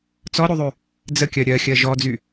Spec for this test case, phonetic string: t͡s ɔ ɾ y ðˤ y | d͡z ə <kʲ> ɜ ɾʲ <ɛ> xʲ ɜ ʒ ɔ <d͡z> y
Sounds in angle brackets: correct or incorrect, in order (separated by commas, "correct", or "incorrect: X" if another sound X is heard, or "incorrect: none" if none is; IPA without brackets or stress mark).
correct, incorrect: ɜ, correct